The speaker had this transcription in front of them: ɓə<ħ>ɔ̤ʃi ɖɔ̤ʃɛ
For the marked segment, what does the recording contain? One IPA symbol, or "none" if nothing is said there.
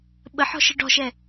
ħ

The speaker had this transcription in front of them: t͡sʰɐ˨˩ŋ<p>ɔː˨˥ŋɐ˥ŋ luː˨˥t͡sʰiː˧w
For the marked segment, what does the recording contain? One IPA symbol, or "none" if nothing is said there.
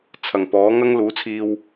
p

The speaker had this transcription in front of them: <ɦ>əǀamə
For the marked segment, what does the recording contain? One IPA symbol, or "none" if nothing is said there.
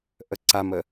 ʔ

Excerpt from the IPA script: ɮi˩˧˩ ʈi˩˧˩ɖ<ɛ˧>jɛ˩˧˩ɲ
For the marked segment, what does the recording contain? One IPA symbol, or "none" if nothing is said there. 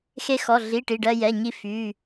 ɜ˧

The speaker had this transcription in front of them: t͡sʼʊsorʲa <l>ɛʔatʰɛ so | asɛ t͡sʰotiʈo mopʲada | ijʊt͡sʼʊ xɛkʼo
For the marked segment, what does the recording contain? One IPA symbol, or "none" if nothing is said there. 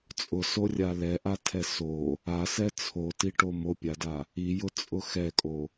l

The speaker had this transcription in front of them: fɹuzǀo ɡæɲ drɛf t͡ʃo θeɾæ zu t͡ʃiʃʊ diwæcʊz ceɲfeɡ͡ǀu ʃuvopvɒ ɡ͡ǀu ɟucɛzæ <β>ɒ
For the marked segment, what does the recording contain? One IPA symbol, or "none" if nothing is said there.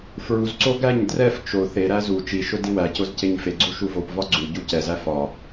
f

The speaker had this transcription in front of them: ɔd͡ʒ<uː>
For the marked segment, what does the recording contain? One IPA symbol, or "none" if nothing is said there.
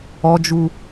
u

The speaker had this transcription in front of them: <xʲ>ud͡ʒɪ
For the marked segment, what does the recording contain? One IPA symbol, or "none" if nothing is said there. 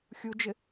xʲ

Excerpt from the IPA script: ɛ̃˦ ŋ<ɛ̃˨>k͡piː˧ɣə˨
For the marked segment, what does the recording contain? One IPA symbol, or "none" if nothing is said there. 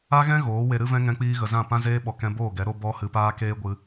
ɛ̃˧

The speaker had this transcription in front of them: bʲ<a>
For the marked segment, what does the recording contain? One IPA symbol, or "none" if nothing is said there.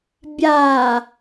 a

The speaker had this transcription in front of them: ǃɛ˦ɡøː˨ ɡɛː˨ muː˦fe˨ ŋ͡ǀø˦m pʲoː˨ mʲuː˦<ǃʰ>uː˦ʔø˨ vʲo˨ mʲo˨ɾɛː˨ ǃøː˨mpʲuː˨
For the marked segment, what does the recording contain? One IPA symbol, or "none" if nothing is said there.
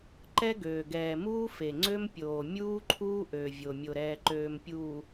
ǃʰ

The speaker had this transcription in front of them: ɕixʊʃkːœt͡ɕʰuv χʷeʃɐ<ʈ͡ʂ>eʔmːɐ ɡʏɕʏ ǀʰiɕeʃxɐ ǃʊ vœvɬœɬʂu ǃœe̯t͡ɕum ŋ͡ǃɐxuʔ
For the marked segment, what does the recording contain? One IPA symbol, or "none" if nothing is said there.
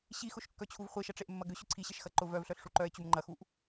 ʈ͡ʂ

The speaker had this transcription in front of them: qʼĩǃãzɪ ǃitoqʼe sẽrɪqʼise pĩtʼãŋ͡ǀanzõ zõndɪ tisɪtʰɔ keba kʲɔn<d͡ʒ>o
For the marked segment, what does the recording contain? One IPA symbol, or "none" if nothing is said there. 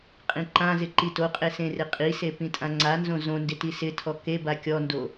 d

